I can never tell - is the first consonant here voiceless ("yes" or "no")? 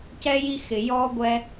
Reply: yes